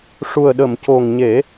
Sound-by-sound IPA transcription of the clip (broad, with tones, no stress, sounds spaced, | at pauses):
ʂ u˨˩ ə̯ ɗ ə˨˩˨ m c o˨˩ ŋ ɲ e˨˩˦